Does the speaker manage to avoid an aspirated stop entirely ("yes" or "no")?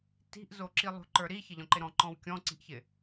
yes